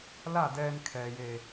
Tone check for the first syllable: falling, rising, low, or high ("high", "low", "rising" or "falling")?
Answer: falling